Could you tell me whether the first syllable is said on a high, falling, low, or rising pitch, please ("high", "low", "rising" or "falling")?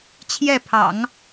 falling